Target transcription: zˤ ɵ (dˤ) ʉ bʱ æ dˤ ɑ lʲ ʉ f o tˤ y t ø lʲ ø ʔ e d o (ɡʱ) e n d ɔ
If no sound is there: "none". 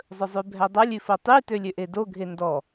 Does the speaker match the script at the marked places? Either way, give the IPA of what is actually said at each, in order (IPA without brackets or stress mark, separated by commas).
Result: zˤ, ɡʱ